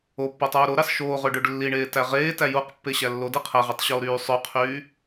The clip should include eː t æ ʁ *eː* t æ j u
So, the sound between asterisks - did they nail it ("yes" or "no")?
yes